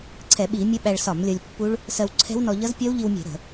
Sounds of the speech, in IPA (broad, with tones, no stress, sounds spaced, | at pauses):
ǀʰ ɛ˧˩˧ ɓ i˧˩˧ mʲ ʌ˦˥ ɓ æ˧ ɭ s ɒ˧˩˧ m lʲ ʌ˧ lʲ pː u˦˥ ɭ | s ɜ˧ w ǀʰ ɛ̤˦˥ w n ɔ˧ ʎ ʌ˦˥ z pʲ ɒ˦˥ w ʎ i˧ w mʲ ɛ̤˧˩˧ ɾ ə̤˧˩˧